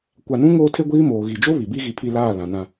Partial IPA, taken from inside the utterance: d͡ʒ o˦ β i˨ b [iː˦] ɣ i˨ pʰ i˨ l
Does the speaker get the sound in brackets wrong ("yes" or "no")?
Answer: yes